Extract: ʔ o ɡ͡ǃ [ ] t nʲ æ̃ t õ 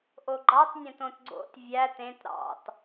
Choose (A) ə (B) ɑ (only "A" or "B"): B